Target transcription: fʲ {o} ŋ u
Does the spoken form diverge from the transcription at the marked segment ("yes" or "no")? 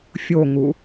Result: no